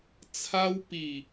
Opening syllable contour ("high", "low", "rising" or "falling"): high